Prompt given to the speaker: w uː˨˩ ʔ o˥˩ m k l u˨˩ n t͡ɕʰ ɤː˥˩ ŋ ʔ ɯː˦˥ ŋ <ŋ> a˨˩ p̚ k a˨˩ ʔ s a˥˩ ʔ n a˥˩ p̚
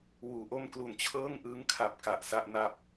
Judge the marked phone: incorrect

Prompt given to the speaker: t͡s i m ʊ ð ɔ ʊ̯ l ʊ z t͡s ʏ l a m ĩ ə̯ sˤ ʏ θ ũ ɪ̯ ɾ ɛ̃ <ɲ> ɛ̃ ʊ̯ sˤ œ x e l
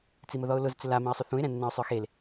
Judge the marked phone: incorrect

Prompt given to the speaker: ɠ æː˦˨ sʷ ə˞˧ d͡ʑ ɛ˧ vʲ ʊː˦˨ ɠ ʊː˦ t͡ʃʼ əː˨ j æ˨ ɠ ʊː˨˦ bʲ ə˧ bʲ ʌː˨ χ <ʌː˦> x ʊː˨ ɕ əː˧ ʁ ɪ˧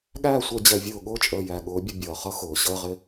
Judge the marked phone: incorrect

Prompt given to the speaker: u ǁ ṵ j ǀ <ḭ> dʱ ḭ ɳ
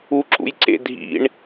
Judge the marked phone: incorrect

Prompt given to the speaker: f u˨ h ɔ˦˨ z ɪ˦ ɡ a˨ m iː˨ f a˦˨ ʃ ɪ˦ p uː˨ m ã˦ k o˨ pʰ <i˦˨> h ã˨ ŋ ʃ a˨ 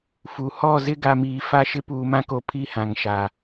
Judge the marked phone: correct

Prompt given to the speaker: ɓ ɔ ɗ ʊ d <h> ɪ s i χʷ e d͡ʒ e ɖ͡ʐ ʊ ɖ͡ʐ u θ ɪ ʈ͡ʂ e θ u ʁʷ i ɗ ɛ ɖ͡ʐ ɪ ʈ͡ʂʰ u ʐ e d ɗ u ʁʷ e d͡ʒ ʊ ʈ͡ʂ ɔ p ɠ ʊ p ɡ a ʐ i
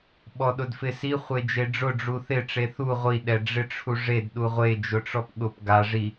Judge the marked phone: incorrect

